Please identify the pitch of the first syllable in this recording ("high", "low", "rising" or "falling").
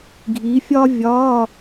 rising